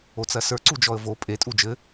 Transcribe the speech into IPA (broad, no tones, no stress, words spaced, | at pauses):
ot͡sɐsə˞ ǀud͡ʒɔə̯vo pʼe tʼud͡ʒɘ